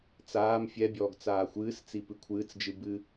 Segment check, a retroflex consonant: absent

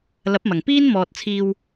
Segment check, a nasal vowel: absent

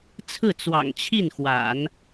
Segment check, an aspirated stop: present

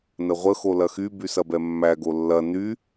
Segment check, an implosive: absent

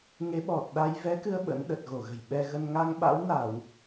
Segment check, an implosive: present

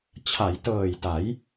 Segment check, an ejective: absent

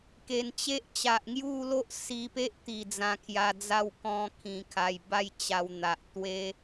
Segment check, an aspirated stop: present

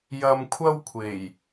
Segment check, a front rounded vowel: absent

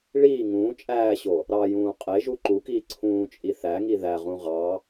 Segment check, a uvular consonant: present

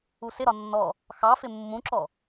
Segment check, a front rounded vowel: absent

